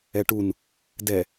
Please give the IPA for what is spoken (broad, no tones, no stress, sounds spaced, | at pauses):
ɛ ʈ u n | d ɛ